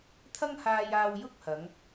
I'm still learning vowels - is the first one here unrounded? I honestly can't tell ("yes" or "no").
yes